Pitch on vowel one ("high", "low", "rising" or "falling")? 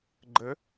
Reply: rising